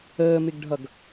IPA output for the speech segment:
əː m ɪ ɡ ɖʱ ʌ ɡ

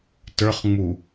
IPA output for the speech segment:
t ə˞ χ ŋ͡m u

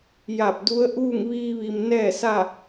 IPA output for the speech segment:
j a˧˩ p̚ d u˧˥ ə̯ ʔ uː˥˨ ŋ ʋ iː˧ ʋ i˩ m n ɛː˥˨ s a˥˨

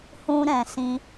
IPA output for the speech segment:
h ũ˧ ɾ ɛ̃˨ s ĩ˧

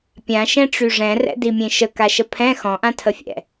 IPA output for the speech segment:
pʲ ã ʃ ɛ̃ ʈ͡ʂ y ʐ ɛ̃ r ɛ̰ d i mʲ ẽ ʃ ə k a ʃ ə pʰ ɛ̃ x ɔ̃ ʔ ã tʰ ə fʲ ɛ̰

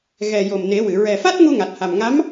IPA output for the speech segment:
ɣ ɛ˨˩ j o˨˩ m n e˨˩˦ w ɨ˨˩˨ ɹ ɛ˨˩ f a˦˥ t̚ ŋ u˧ ŋ a˨˩ t̚ h a˨˩ m ŋ a˧˥ m

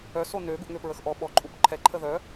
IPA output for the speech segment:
œ s o n ø ɡ u ʔ ŋ ø p ɹ ə x ʔ ɔ ɓ ɔ ǃʼ u p ǃʰ ɛ ǃʰ ə ð œ

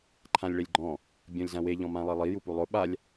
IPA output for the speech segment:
ǃʰ ã lʲ ɭ e lʲ ɡ͡ǃ ɔ̃ | bʲ ɔ̃ lʲ z ã w e ʎ ɔ̃ m ã lˠ e lˠ i j u p u lˠ ʊ ɓ a lʲ

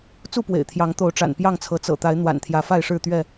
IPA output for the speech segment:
t͡s u˥˨ p w ḛ˨˩ ɪ̯ t̪ʰ j ɑ˨˦ ŋ t̪ o˨˦ ʊ̯ ʈ͡ʂ a̰˨˩ n p j ɑ˥˨ ŋ t͡sʰ ɤ˨˦ t͡s ɤ̰˨˩ t̪ a˨˦ ɪ̯ n̪ w a̰˨˩ n t̪ʰ j ä˨˦ f a˥˨ ɪ̯ ʂ ɻ̩˥˨ t̪ ɥ ɛ˥˨

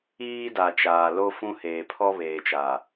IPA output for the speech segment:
iː˦ d a˨ t͡ʃ aː˨ l o˦ f ũ˦ h eː˨ pʰ ɔ˦ β eː˨ t͡ʃ a˨

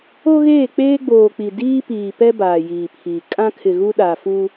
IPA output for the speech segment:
o˦ ɣ eː˦˨ k͡p eː˦ ɡ͡b oː˨ k͡p i˨ d iː˦ p iː˨ p ɛ˦ b aː˨ j iː˨ pʰ iː˨ kʼ ã˦ kʰ ɪ˨ ɣ u˦ ɗ a˨ f u˦

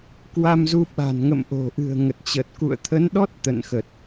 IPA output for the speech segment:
k w a˧ m z u˧ ɓ a̤˨˩ n ŋ ə̰˧˨ m ʔ o̤˨˩ ʔ ɨ̤˨˩ ə̯ ŋ ə˨˩ t̚ t͡ɕ ə˨˩ t̚ k ṵ˧˨ ə̯ t̪ʰ ə˨˦ n ɗ ɔ˦˥ t̚ t̪ ə̰˧˨ n x ə˨˩ t̚

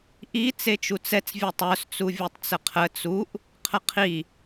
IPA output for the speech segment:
ʔ i t͡s e t͡ʃ u t͡s ɛ t͡s vʲ ɛ tˤ œ s t͡s u vʲ o tˤ t͡s ə qʰ ə t͡s u ʔ | qʰ ə qʰ i

